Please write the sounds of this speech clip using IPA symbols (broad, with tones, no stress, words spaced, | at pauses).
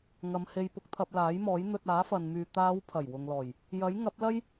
ŋɐ˨˧mhe˧jpʊ˧k̚t̪ʰɐ˧p̚ laː˨˥jmɔː˨˥j n̪ɵ˧t̚aː˨˥fɐ˨nmyː˨ t̪aː˨˧w pʰɐ˨˩jwʊ˨ŋlɔː˨˩j | jɐ˨˥jŋɐ˨˥p̚lɐ˥j